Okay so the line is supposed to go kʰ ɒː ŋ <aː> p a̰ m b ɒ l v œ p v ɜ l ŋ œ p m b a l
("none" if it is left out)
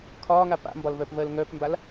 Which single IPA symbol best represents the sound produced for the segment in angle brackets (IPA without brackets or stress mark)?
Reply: a